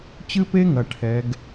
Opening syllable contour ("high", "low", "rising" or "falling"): high